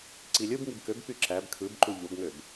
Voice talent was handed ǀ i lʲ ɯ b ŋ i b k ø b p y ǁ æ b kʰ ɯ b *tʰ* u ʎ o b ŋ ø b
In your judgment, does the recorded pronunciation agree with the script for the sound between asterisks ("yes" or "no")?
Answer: no